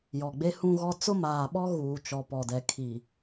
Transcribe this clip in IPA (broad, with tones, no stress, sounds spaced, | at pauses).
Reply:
j ɔ˨ ɡ͡b e˦ h ũ˦ ɣ ɔ˦ t͡s ʊ˦ m aː˨ ɓ ɔ˦ ɣ uː˨ t͡ʃ ɔ˨ p ɔ˨ d ɛ˨ kʰ i˨